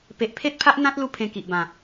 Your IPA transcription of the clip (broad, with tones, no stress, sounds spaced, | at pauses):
p e˨ ʔ pʰ e˦ t̚ pʰ a˦ ʔ n̪ ã˦ t̚ l u˦ pʰ ẽ˧ k i˨ ʔ b ã˨˩